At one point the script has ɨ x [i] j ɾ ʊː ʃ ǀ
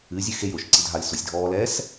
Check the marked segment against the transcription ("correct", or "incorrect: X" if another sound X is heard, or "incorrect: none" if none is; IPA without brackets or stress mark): incorrect: e